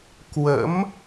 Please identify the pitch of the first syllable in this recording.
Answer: rising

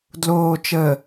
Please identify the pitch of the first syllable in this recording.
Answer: low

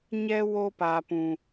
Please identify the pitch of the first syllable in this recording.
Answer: high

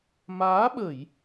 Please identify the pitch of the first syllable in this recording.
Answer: rising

